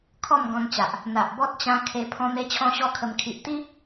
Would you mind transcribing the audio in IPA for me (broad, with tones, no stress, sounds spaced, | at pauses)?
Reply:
kʰ ɔ˥˧ m ɡ ɔ̃˧ n t͡ɕ a˨ ʔ | n̪ a˨ ʔ b ɔ˦ t̚ t͡ɕ ã˧ kʰ e˧ pʰ ɔ̃˧ n̪ e˧ t͡ɕʰ ɔ̃˧ ɕ ɔ˦ kʰ ə˧ m kʰ i˨ ʔ t̪ i˦